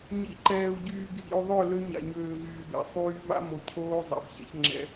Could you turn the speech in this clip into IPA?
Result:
ɲ ḭ˨ ǃ ɛː˨ u̯ ɟ yː˨ ɡʱ ḭ˨ u̯ ðˤ œ˦˨ l ø˦ ɲ a̰˨ ɲ øː˨ v yː˨ b ɛ̰˨ sˤ yː˦ v a̰˦ m o˨ cʰ oː˦ zˤ ɛ̰˨ b ç ɛ̰˦ ç ŋ͡ǁ ɛ̰˦

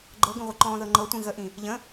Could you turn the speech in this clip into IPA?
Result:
ɡ͡ǃ ɤ ɡ ə̃ ʁʷ i ǃ ɔ̃ː ð ɤ ŋ͡ǃ ɤ tʷ ĩ ɣ ə ʔ ĩ | ʎ ə̃

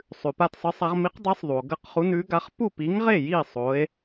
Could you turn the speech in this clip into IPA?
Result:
sˤ ʉ˩ p a˥˩ t sˤ ɨ˨˥ sˤ a˨˥ ʁ m i˨˥ q dˤ i˨˥ sˤ ðˤ u˩ o̯ ɡ ɐ˥˩ q χ u˨˥ n ʉ˨˥ ɡ a˨˥ χ p u˥˩ p i˨˥ ŋ ʁ e˥˩ j i˥˩ sˤ o˨˥ e̯

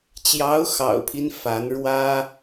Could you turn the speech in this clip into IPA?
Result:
t͡ɕ j ɑ˧˥ ʊ̯ x ɑ̰˨˩ ʊ̯ pʰ i˦ n f a˧˥ n ɻ w ä˥

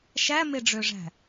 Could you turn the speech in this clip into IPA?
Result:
ʃ æ m e ɖ͡ʐ ø ʐ æ̤

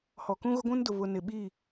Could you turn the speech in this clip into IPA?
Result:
h ɔ˨ k ũ˦ ɣ ʊ˦ ɡʷ ũ˦ n d ʊ˨ β ʊ˨ n ɪ˨ ɓ iː˦˨

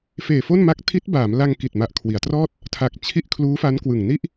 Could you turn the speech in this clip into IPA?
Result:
f eː˨˩ f o˥˩ n m a˦˥ k̚ tʰ i˦˥ t̚ b aː˩˦ m l a˧ ŋ k i˨˩ t̚ m a˨˩ ʔ kʰ w i˩˦ a̯ t r ɔː˥˩ t̚ | tʰ a˨˩ k̚ t͡ɕʰ i˥˩ ʔ kʰ l uː˦˥ f a˦˥ n k w ɯ˨˩ ŋ n i˥˩ ʔ

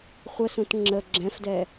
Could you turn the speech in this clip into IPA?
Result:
χʷ ə s ũ t ŋ͡ǁ ə ɡ͡ǁ ɛ̃ f d ɛ

